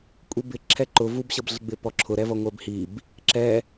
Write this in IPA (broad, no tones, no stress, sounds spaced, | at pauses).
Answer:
kʷʼ i b ɪ ǁʰ ɛ ǃ ʊ v u b ɕ ʌ b ɮ ɪ ɡ͡b ɪ p ɔ ǁʰ ʊ ɾ ɛ v ʌ ŋʷ ɛ b h i b | ǁ ɛ